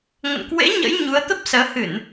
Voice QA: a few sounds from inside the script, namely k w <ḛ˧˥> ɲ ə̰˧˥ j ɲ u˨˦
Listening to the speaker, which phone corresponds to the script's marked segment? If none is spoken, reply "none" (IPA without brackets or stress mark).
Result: ḛ˧˥